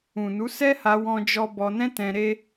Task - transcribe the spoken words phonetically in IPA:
ũ˨nu˨˦sɛ˦ha˧ wɔ̃˦d͡ʒɔ˦ bɔ˧nɛ̃˦tɛ̃˧ ɾe˦

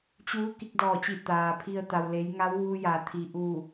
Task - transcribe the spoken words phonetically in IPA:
t͡ɕuː˧˥ ki˧k̚dɔː˧˩t͡ɕi˧˩ t̪aː˩pʰi˧ə̯t̪a˩wle˩˧j ŋa˧˥wʋuː˧ ja˩t̪ʰi˩ʔuː˧˩

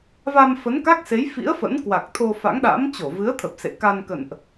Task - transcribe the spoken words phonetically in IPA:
va˧mfə˨˦n ka˦˥k̚se˨˦jfḭ˧˥ə̯ fə̰˧˥n kwa˨˩k̚ t̪ʰo˧fa̰˧˥ŋ ɗa̰˧˥m t͡ɕo˧˩vɨ˨˦ə̯t̪ʰə˨˩p̚ sḛ˧˨ka˧nkə̰˧˨nʔ

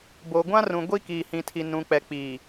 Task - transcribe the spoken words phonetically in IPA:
bo˨ɡʷã˦rũ˨ ɡʷi˦kiː˨hĩ˨tʰi˨ nũ˨k͡pɛ˨k͡piː˨

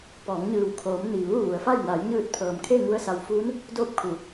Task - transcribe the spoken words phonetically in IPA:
pɔː˩˧ŋɲɯː˩w kʰoː˩˧m niː˩ʋuː˥˨ʋu˩˧ə̯fa˥˨j na˩˧jɲɯː˧˩t̚ pʰɤː˩mkʰe˥˨ ŋu˧ə̯sa˩wfuː˧˥n | doː˥˨p̚kʰu˩˧

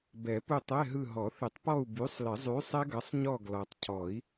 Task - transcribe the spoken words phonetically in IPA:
bɛ˨˩˦pu˦˨tˤɛ˧˥˧ɦɯ˦˨ ɦɔ˨˩˦ θɪ˨˩˦tˤpɔ˦˨u̯ by˨˥sˤlɪ˨˩˦ zˤy˨˥sˤɛ˦˥ɡɐ˨˥sˤɲɔ˦˨ ɡlɔ˨tˤcʰɔ˨˩˦i̯

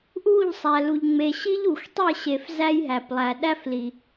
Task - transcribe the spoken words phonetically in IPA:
ʔu˦˨ʎ sˤæ˨lu˨ʎŋ͡me˨ ɕi˦ʎ u˨xtˤe˦˨ɕe˨f zæ˦jɦæ˨plˠæ˨ ɗæ˦f li˨

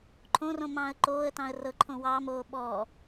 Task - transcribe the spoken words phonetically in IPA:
ǃʰõrõ mɑ̃ːə̯ǃoːə̯tɑ̃ə̯ rɤǃʰõ wɑːmoː ɓɔː

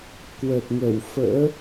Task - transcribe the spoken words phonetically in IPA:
kwə˨˩t̚ŋə˧˩w fə̰ː˧˥

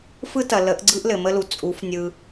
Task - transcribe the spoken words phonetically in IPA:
fɯ˦ tɐ˨lə˨˦ʔɡ͡ǀɯ˦ʔ lɘ˨mə˦lu˨ t͡sʼu˨˦fnʲɯ˧

